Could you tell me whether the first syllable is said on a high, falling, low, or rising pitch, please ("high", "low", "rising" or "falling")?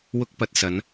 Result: high